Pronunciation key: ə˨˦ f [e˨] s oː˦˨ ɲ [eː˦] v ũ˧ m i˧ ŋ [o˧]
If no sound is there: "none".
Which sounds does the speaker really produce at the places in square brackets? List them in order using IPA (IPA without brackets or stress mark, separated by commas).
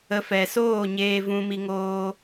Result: ɛ˨, eː˧, oː˧